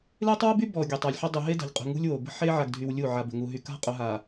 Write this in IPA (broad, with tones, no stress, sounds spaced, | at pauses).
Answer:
l e˦ tˤ w ʊ˦ b y˦ b ɔ˨ ɡʲ ʊ˨ tˤ a˨ lʲ ħ ʊ˦ dˤ u˨ ɦ e˦ d a̤˨ ʎ qʼ ṳ˨ ŋ ṳ˦ lʲ w o˨ b ə̤˦ ħ e˦ ʕ a˨ ɡ dʱ y˨ w lʲ u˦˨ ʕ a˨ b ə̤˨ ŋ u˨ ɦ y˨ k a̤˦ qʼ ʊ˨ ɦ a˨